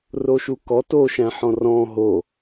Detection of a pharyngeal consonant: present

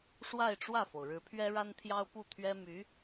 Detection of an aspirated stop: present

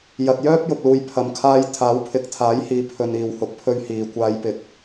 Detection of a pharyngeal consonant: absent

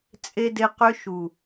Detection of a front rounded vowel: present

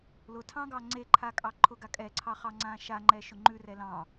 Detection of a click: present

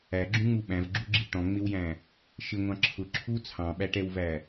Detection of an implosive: present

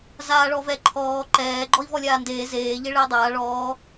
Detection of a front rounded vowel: absent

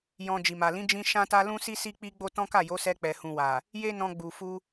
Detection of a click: absent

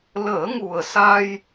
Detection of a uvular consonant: absent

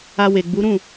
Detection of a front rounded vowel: absent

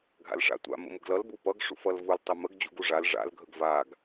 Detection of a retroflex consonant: present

